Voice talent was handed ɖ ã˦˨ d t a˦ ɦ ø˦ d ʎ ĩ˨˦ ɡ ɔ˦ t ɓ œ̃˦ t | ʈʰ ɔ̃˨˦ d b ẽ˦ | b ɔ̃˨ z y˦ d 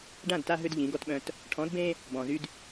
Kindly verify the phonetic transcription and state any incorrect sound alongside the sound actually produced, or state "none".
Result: none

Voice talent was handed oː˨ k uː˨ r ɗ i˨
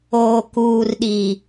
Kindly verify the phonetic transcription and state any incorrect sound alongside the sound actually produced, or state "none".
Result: none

